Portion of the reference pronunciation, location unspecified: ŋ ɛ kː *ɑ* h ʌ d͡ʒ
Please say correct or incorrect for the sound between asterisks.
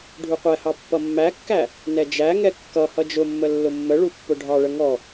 incorrect: ʌ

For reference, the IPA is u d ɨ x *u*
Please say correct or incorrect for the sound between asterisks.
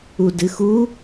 correct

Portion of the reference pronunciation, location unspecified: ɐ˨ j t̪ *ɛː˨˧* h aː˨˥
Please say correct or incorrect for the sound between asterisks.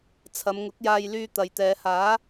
correct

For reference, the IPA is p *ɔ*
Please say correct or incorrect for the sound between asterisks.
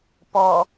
correct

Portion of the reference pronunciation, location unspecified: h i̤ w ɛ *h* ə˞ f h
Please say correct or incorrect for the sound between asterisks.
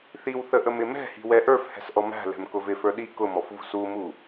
incorrect: ʔ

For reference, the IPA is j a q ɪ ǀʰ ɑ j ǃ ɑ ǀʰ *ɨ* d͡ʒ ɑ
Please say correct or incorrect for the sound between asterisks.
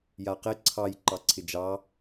incorrect: ɪ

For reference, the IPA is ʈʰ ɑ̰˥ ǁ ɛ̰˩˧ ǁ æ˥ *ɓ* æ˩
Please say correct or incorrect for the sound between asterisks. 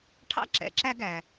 incorrect: ɡ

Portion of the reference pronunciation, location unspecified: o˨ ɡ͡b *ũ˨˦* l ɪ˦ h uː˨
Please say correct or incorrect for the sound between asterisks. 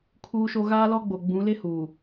correct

